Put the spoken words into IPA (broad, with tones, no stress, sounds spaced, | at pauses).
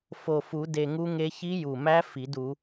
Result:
f o˨˩ f u˨˩˦ d e˨˩ ŋ u˦˥ ŋ e˦˥ ç i˦˥ j u˨˩ m æ˦˥ f i˨˩˦ d u˨˩˦